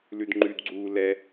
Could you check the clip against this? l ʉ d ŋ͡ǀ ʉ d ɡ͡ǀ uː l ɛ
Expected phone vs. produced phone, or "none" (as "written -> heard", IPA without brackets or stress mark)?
ŋ͡ǀ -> ŋ͡ǃ